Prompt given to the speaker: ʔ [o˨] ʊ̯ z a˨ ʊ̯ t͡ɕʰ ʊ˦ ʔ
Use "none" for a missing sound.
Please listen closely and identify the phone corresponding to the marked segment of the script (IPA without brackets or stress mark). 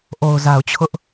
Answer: o˨